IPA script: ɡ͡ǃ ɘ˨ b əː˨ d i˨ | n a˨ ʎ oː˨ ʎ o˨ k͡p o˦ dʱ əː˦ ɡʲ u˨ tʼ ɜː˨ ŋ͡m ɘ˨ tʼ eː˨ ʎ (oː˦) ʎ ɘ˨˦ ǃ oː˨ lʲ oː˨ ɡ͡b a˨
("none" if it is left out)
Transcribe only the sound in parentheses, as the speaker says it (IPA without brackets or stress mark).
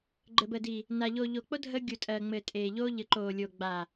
oː˦